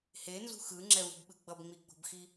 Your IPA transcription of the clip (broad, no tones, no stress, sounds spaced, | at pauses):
h e n z ṳ x ɯ ŋ͡ǁ ɛ v ṳ b ɓ ɯ ɡ͡b ʌ b ŋ͡m i ɡ͡b o̤ b x i